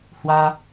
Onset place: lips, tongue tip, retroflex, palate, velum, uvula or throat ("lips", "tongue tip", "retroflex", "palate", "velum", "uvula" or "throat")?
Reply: throat